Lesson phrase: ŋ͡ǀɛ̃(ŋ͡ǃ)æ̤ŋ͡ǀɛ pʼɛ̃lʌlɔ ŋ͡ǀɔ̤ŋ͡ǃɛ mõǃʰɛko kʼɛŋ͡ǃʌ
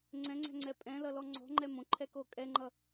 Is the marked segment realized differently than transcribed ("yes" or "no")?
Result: yes